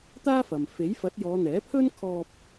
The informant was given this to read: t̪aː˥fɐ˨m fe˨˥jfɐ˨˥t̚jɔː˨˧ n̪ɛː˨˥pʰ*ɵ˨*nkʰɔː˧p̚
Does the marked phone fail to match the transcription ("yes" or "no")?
yes